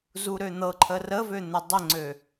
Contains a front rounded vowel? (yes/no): yes